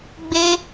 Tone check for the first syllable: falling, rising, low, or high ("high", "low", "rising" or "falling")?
high